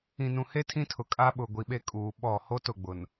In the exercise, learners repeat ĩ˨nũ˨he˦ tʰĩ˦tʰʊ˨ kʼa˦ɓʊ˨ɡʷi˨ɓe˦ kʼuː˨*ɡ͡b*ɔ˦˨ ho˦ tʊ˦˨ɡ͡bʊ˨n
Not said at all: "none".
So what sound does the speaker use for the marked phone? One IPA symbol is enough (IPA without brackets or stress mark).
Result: ɓ